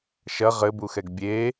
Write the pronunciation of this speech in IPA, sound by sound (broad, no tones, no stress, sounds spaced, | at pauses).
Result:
ʃ ɐ ʁ ɘ b u x ɛ ɡ bʲ e